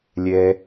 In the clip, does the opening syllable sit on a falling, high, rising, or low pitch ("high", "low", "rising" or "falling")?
high